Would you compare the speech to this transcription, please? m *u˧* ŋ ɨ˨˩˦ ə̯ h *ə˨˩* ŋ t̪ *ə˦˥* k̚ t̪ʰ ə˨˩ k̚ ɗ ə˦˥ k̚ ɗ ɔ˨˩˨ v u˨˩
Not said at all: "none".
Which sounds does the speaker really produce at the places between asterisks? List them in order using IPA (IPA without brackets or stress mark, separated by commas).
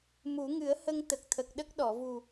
u˨˩˦, ə˧, ə˨˩